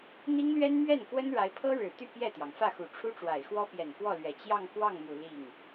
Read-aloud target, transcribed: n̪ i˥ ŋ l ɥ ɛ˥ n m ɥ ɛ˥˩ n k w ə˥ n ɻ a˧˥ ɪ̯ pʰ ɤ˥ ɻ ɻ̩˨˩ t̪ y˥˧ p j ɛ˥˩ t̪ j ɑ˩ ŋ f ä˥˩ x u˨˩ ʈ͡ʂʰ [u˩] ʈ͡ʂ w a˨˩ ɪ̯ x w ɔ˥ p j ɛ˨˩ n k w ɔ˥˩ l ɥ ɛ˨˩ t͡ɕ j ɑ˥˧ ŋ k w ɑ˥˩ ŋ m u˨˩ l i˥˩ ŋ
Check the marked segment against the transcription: incorrect: u˥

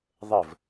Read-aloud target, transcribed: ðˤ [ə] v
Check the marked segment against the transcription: correct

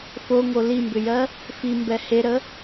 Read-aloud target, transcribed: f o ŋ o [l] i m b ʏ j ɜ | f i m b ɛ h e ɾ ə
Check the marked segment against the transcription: correct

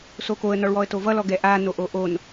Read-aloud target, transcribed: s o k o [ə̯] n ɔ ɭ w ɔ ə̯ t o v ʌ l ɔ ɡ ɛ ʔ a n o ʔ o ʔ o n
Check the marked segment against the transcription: correct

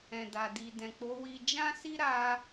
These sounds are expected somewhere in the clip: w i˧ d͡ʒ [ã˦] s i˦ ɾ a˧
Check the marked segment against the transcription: correct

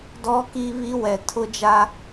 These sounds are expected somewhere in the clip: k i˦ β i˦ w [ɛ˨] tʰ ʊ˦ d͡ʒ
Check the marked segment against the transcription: correct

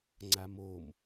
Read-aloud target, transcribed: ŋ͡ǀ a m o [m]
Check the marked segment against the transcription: correct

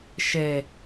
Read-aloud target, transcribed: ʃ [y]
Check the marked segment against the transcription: incorrect: e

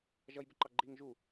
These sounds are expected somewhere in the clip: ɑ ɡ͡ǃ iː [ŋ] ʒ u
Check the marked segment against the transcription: correct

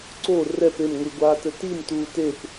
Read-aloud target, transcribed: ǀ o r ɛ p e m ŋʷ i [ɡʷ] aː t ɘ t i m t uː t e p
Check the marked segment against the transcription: correct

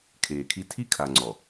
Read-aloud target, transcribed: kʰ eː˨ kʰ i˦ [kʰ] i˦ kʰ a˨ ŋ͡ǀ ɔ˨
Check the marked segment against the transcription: incorrect: tʰ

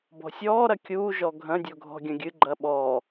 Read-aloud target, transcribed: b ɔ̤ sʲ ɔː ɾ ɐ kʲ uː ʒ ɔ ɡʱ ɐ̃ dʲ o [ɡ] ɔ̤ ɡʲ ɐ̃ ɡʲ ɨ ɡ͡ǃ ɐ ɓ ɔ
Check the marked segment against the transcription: incorrect: ɡʱ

